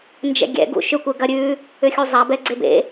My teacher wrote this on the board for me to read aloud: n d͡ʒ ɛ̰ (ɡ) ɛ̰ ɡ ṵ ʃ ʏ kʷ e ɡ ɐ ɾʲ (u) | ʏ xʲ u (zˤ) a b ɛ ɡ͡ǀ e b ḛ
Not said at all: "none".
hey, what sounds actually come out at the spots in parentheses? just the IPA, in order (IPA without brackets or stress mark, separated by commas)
ɡʲ, ʉ, zˤ